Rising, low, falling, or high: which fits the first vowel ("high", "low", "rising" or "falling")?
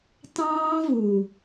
high